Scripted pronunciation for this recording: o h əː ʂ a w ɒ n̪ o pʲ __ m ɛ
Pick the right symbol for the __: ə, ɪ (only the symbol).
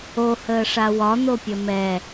ə